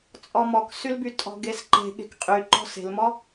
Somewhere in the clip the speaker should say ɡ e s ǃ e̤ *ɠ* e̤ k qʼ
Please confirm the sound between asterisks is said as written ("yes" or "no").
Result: yes